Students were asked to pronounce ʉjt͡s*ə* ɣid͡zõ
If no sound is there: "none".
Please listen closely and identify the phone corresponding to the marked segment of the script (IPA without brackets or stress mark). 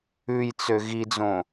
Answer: ø